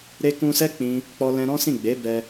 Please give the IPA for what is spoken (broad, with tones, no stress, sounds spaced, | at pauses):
ɾ e˦ k ũ˧ s ɛ˦ k͡p ĩ˦ | k͡p ɔ˦ l ɛ̃˦ ɾ ɔ̃˦ s ĩ˦˨ ɡ͡b e˨˦ b ɛ˧